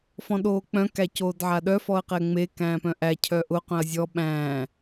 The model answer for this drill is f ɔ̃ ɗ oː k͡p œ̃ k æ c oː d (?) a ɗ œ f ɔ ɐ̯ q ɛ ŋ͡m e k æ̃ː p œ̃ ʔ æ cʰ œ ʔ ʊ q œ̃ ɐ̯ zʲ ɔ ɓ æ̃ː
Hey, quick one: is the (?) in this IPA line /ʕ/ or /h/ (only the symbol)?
ʕ